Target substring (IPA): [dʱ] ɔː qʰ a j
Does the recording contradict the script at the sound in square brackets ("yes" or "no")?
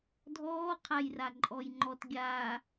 no